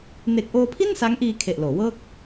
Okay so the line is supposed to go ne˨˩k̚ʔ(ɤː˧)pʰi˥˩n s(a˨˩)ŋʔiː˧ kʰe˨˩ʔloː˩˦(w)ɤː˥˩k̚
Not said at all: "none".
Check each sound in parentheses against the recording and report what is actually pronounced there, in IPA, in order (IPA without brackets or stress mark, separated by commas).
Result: oː˧, a˦˥, w